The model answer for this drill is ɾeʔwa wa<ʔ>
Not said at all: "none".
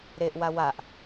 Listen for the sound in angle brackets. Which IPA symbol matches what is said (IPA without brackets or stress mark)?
ʔ